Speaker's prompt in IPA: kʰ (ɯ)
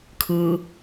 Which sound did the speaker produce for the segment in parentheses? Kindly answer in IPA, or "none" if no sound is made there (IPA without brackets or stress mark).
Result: ɯ